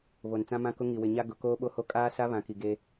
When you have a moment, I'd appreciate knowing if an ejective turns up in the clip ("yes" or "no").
yes